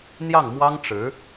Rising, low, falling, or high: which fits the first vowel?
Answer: falling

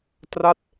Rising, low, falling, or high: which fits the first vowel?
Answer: falling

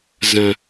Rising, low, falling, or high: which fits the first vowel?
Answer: high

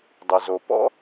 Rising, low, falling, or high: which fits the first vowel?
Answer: low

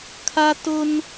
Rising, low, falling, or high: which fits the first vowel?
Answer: high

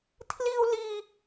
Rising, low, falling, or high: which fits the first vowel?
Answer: high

